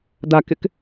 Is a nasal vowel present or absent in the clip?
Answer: absent